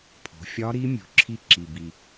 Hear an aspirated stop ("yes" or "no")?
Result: yes